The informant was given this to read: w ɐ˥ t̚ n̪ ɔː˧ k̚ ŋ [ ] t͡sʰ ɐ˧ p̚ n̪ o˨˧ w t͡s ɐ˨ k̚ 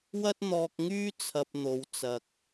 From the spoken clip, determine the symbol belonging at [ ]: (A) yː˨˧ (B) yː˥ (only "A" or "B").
B